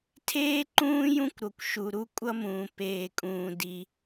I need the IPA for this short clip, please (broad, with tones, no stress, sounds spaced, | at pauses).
tʰ eː˥ ǃ ũː˥ j ũ˥ kʷ ɾ o˨ kʷ ʃ u˨ ɾ u˥ kʷʼ ʌ˥ m ũː˨ p eː˨ kʼ ũː˨ d i˨